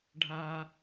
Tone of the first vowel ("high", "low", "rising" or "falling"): low